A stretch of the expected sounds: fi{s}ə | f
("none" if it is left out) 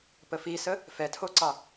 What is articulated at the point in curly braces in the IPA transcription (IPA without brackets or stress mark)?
s